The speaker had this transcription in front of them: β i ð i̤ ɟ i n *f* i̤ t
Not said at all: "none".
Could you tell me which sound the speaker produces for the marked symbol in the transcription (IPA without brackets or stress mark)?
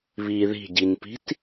p